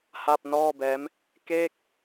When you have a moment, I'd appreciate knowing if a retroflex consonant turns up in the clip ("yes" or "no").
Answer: no